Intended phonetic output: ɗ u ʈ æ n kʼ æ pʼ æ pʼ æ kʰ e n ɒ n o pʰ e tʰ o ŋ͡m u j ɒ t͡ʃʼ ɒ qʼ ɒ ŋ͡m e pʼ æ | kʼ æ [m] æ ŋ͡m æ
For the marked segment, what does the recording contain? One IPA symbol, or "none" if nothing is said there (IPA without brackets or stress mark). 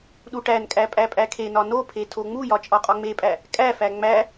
f